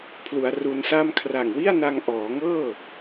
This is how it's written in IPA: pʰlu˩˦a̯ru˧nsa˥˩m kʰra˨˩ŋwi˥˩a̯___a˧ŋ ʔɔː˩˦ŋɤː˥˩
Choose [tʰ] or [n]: n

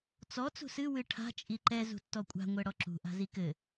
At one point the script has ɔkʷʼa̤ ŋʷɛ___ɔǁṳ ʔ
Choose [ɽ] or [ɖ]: ɽ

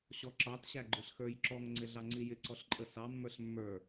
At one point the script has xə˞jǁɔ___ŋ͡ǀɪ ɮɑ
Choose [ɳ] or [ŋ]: ŋ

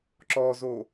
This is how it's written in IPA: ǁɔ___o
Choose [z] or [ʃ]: z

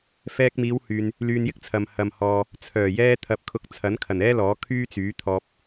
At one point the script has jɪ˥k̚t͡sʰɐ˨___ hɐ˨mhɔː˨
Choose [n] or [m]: m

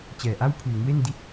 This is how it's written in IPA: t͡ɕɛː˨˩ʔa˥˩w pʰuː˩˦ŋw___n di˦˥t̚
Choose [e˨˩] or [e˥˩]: e˥˩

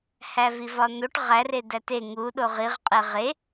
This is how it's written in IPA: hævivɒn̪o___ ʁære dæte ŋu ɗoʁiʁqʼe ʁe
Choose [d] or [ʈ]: ʈ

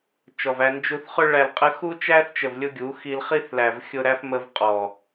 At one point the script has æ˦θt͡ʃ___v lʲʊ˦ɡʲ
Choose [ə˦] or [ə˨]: ə˨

